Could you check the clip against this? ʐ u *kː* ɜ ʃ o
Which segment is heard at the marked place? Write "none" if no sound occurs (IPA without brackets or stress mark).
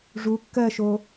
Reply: kː